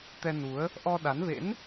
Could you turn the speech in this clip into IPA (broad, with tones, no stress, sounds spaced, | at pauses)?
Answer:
t̪ ɛ˧ n u˨˦ ə̯ | ʔ ɔ˧ ɗ a˨˦ n v ḛ˧˥ n